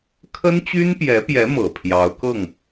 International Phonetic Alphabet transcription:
kʰə˥nt͡ɕy˥npjɛ˧˥pjɛ˧˥ mɤ˨˩pʰjɑ˧˥ʊ̯kɤ˥˩ŋ

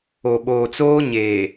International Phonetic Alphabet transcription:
o˨ɓoː˨t͡soː˦ɲeː˨

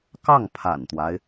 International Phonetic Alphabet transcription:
kɑ˥˩ŋpʰa̰˨˩nt̪wa˦ɪ̯

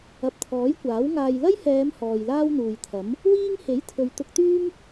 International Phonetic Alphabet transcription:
ɐ˨p̚t̪ʰɔː˨˥jkʷaː˨˥w ŋaː˨jlɐ˥jhɛː˨˧m hɔː˨jlaː˥wn̪uː˨jt̪ʰɐ˨˥m | wiː˥ŋ he˨˥jt̪ʰɵ˨ɥ t̪ʊ˧k̚t̪yː˥m

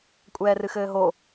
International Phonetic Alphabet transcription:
kʷʼɛːrɨxɘːɦo

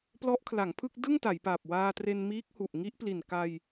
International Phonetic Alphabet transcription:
plɔ˦˥ʔkʰla˩˦ŋpʰɯ˥˩k̚ dɯ˥˩ŋta˩˦jpa˨˩p̚ waː˧tre˧nmiː˦˥k̚hu˨˩ʔ ŋi˦˥ʔpli˨˩nka˧j

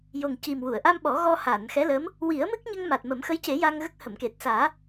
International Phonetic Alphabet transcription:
jo˨˩ŋci˨˩m wu˨˩˨ə̯ʔa˧mɓɔ˨˩˦ ɣɔ˧haː˨˩˨nxɛ˧˥lə˧˥m | wi˨˩˦ə̯ mɨ˦˥k̚ɲə˧ŋ ma˨˩t̚mə˨˩˦mxə˧˥jce˨˩˦ ja˧ŋɣə˦˥k̚ hə˨˩˨mke˨˩t̚ saː˨˩˦

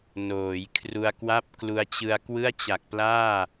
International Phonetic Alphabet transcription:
noː˩˦jkʰru˧a̯kwa˥˩p̚ klu˧a̯t͡ɕɯ˧a̯ kwɯ˥˩a̯t͡ɕa˨˩k̚plaː˥˩

